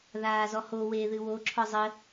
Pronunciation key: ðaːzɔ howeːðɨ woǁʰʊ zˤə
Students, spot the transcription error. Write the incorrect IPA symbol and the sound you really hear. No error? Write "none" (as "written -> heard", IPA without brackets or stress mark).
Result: ʊ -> ɔ